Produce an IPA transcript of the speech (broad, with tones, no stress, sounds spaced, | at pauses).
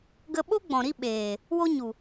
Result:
ɡ ə˧ ɓ o˦ ɡ͡b ɔ̃˨ ɾ i˦ ɓ eː˨ | w o˦ ɲ u˨